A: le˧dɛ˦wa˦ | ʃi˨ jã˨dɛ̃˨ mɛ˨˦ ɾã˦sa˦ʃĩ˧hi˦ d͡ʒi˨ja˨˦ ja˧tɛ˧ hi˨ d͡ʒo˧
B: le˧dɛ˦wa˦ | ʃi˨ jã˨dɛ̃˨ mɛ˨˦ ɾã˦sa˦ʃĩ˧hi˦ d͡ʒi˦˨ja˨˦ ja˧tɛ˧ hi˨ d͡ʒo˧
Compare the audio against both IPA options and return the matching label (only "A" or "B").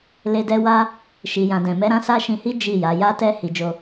B